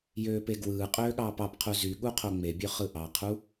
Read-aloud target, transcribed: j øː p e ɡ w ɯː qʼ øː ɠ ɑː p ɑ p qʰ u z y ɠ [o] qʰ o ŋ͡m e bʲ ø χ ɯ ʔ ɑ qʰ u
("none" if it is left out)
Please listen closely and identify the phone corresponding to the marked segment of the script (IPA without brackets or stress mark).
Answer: u